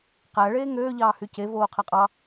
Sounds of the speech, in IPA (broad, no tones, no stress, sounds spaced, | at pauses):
q æ ɭ eː ŋ øː ʎ ɑː h y c e v oː qʰ æ qʼ ɑ